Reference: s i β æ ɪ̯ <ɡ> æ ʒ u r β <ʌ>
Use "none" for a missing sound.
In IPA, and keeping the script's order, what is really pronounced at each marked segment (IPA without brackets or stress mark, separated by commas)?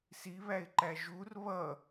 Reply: ǃ, ʌ